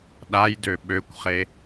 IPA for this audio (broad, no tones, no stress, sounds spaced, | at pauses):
ɗ a j d ø ɓ ø kʷ χ e